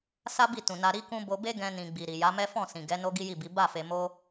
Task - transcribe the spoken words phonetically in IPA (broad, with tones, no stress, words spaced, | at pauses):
sa˦bi˦˨tũ˨ na˧ɾi˦kũ˦ bo˧be˦ɡɛ̃˧nĩ˨ ɡ͡bi˨ɾi˨ja˨˦mɛ˦ fɔ̃˦˨ sĩ˨ɡɛ˨˦ no˦ɡi˦ji˦˨bi˨˦ ba˦˨ fe˧mo˦